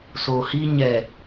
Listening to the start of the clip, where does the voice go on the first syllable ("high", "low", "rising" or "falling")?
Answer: low